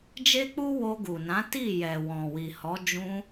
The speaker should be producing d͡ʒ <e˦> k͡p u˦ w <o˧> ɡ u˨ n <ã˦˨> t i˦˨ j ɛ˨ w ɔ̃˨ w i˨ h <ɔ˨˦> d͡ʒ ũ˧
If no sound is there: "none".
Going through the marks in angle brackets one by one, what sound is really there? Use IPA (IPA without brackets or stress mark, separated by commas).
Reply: e˦, o˧, ã˨˦, ɔ˨˦